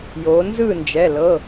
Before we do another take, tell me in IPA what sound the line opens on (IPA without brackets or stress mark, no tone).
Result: j